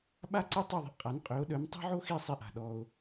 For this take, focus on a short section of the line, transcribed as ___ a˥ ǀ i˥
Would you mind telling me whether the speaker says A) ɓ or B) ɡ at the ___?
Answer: A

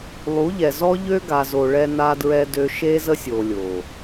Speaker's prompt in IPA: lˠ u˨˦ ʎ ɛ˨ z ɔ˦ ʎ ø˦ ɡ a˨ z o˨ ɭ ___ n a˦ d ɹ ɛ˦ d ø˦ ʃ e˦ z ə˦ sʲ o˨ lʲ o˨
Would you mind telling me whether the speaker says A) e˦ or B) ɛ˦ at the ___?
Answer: B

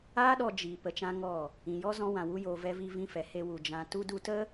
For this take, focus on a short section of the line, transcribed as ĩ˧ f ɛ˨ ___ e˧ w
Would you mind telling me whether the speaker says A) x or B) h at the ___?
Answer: B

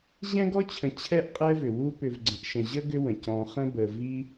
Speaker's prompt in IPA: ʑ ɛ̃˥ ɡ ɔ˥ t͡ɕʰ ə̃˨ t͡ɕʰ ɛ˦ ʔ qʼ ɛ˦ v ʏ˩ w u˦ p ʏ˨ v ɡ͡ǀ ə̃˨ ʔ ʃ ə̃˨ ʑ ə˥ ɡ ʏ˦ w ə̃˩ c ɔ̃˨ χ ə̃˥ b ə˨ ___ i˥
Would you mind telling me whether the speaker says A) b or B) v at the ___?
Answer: B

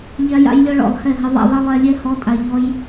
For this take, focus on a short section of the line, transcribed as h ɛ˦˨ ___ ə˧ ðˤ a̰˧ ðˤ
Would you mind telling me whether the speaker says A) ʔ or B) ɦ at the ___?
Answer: B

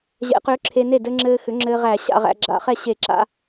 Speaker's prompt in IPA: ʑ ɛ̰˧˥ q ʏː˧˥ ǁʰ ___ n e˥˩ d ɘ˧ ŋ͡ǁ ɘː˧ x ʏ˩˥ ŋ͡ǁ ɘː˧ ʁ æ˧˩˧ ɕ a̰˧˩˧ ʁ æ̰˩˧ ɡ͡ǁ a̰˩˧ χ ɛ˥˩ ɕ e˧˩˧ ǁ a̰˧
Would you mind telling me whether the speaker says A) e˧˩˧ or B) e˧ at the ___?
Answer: B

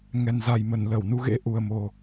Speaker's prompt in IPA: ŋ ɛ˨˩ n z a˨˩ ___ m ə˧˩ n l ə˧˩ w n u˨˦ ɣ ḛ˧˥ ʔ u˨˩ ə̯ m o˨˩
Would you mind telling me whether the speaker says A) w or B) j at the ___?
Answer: B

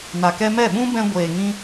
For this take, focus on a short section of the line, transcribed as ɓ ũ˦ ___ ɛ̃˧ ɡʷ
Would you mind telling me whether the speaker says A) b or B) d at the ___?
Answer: A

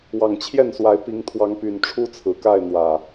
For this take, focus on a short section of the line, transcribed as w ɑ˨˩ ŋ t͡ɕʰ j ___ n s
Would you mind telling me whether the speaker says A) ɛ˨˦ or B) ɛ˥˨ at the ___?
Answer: B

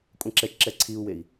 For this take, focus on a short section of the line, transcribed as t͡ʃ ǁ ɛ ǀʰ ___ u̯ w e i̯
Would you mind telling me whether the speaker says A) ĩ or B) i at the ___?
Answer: B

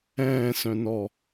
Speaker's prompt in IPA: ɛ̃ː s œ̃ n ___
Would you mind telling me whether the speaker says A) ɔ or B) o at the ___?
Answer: A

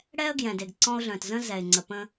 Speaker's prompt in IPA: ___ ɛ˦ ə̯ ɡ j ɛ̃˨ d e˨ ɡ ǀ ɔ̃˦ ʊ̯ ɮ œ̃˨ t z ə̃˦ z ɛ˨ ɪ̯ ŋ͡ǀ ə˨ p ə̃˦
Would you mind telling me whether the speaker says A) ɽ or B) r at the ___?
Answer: A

